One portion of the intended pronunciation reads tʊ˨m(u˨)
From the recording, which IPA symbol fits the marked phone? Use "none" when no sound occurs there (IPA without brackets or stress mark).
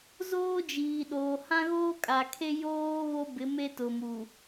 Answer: u˨